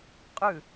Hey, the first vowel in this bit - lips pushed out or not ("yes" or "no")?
yes